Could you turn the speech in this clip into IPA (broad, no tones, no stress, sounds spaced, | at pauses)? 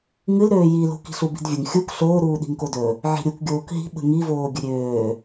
ŋ ɨ l ɾ øː j i l o̤ k i̤ ɬ u b i̤ d vʲ ə ŋ xʲ u k ɬ oː ɾ uː ɗ i̤ ŋ k o d ɵ | ʕ i̤ ɾʲ u k ɡʲ oː k ɦ i̤ ɓ ə̤ ŋ i v oː ɡʲ ə ɾʲ øː